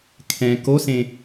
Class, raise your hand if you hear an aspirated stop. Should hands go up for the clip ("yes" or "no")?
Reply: yes